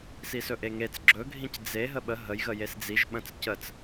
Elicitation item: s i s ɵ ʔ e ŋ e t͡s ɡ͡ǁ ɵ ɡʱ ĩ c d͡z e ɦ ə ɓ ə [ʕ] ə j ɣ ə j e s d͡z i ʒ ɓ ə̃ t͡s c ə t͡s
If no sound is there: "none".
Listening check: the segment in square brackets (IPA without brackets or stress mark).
ɦ